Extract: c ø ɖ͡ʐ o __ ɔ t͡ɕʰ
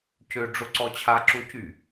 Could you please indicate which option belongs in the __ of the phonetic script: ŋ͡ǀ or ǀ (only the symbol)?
ǀ